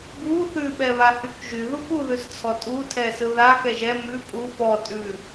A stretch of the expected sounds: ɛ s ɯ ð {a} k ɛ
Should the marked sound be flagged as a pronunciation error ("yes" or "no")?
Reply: no